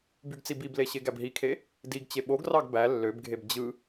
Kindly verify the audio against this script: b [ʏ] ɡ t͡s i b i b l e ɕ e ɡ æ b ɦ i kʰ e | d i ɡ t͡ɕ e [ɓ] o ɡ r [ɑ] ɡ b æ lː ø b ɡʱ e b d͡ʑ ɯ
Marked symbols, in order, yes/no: no, yes, yes

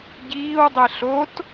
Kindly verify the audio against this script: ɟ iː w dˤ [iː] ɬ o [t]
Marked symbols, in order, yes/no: no, yes

